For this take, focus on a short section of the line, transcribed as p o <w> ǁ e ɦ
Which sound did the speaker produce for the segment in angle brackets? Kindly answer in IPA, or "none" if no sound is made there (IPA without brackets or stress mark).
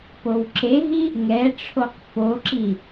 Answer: w